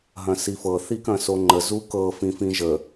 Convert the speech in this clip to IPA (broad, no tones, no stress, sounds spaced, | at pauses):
ɦ ɐ̃ s i f ɤ θ i k ɐ̃ s o ŋ͡ǃ ə z u k ɤ f ĩ f ĩ ʒ ə